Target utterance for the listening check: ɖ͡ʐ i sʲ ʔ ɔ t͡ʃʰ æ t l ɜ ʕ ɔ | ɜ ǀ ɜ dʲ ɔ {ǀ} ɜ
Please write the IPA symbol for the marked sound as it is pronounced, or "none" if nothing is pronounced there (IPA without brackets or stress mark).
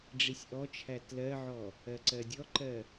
ǃ